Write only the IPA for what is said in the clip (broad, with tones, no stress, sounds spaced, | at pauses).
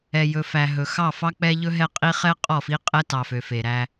ɛ˨ j ɵ˨ f æ˨ ɦ ɵ˨ x ɑ˦˨ f ɑ˦ k͡p ɛ˦ ʎ ɵ˦ ɦ ɛ˦ qʼ i˦ χ ɛ˦ qʼ ɔ˦˨ f i˦ qʼ ɛ˦ t ɑ˨ f ø˨ f e˨ ɾ æ˦